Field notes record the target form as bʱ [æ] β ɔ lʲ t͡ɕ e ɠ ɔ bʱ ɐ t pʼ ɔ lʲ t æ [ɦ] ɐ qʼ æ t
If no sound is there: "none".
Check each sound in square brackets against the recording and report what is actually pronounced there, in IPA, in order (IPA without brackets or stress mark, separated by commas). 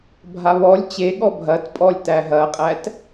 a, ɦ